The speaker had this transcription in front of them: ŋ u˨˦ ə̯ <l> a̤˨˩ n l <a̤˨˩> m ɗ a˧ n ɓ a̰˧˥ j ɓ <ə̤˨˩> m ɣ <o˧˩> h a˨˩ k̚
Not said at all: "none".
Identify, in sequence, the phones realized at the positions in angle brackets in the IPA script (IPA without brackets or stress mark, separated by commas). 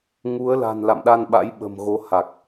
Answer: l, a̰˧˨, ə̤˨˩, o˨˦